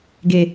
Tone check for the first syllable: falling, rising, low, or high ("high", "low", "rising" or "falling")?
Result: low